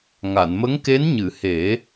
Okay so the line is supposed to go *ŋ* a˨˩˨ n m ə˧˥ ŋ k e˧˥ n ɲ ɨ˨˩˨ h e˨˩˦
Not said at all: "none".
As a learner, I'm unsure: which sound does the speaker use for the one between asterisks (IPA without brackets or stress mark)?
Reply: ŋ